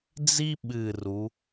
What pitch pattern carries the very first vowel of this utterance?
high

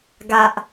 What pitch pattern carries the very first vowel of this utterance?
low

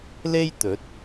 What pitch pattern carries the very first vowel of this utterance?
high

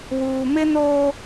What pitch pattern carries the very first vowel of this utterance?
low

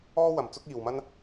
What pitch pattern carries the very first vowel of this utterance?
high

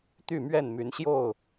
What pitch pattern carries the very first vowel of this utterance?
falling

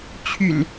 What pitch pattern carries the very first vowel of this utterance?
low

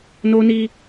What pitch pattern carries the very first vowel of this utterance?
high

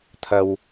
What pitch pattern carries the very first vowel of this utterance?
low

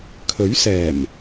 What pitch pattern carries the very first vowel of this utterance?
rising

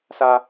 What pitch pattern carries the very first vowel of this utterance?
high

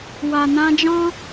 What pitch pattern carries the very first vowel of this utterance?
low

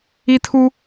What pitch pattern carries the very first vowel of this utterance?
high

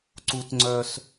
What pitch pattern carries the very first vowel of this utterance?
high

